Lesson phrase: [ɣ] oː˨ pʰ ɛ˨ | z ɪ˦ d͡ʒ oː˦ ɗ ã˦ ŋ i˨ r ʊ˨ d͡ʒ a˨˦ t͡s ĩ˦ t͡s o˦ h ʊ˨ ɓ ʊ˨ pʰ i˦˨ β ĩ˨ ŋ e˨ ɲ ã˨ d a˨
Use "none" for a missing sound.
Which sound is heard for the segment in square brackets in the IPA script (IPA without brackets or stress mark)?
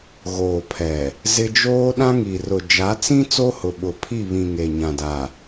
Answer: ɣ